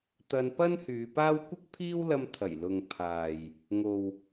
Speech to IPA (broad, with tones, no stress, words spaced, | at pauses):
t̪ɐ˧npɐ˥nhyː˨˧paː˥w kʷɪ˥k̚pʰiː˥wlɐ˧mt̪ʰɐ˨˩j lʊ˨ŋ pʰaː˨j | ŋo˨w